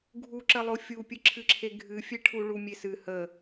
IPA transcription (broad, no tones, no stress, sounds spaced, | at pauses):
ɡʱ u ǁ ə lˠ o fʲ u pʲ ɨ ǁʰ ɨ ǁʰ e ɡʱ ɨ fʲ e ʈʰ u ɭ u mʲ e s ɨ h ə